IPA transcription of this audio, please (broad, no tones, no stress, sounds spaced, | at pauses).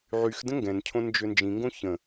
ʕ y x d ə̃ ŋ ɡ ɛ̃ n cʰ õ n d͡ʒ ø n d͡ʒ ĩ ŋ ɡ õ ç ə̃